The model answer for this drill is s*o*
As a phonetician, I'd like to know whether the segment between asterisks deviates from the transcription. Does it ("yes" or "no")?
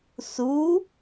yes